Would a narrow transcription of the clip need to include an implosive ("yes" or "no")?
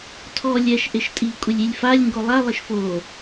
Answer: no